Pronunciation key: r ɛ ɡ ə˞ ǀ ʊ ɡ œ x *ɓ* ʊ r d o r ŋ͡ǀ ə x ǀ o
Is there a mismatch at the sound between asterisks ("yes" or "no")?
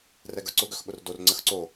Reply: no